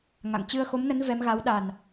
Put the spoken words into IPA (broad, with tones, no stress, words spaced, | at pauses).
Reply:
ŋa̰˧˨ŋ t͡ɕɨ˧ə̯xo˨˦mnə˨˦n vɛ˨˦mɣa˨˦w ɗa˨˩n